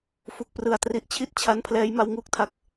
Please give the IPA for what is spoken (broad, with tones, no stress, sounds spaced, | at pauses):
f u˨˩ k̚ p r ɯ˨˩ a̯ t r i˦˥ ʔ t͡ɕʰ i˥˩ t̚ t͡ɕʰ a˦˥ n pʰ l ɛː˦˥ j m a˦˥ w ŋ uː˦˥ k̚ tʰ a˦˥ k̚